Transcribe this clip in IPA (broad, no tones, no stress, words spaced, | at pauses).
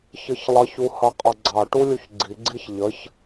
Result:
çəçlˠʌç uhʌqʼʌɡ͡ǀɑ ʈulʲuçɡ͡ǀi ɡ͡ǀiçʎəç